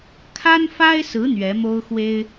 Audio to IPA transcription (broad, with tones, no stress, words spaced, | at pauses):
kʰa˥nfa˥ɪ̯sɹ̩˧˥ n̪ɥɛ˧˥mo˥ʊ̯xwe˥ɪ̯